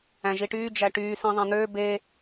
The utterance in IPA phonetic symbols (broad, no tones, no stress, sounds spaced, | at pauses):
æ̃ ʒ i ʈ yː d͡ʒ æ ʈ yː s ĩ ðˤ æ̃ n̪ øː b e